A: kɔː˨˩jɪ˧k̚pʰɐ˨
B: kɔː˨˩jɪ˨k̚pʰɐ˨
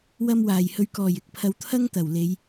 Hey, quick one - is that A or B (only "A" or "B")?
B